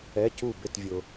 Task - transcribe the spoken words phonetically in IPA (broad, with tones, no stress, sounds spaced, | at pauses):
ɛ˧˥˧ c u˥˨ b ɪ˥˨ t vʲ ʊ˨